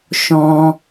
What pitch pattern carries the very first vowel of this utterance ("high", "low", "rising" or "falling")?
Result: high